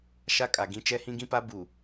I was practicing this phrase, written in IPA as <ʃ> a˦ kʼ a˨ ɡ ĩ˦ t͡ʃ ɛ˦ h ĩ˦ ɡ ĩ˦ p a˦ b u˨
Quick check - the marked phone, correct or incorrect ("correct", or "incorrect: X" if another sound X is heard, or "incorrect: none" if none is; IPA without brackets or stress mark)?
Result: correct